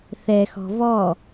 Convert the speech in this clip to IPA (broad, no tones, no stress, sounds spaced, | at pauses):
θ ɛ x ɔ̤ v ɔ